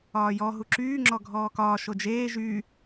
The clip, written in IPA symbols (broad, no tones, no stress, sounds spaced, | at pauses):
ɒː j ɔ ɦ u ǁ yː ŋ͡ǁ ɔ ɡʱ ɔː k ɒː ʃ o d͡ʒ eː ʒ y